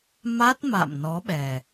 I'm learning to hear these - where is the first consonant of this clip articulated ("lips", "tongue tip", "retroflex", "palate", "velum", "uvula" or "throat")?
lips